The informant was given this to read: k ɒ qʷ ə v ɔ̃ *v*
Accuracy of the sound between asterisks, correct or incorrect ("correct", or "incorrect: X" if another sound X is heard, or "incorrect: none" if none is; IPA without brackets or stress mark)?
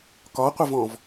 correct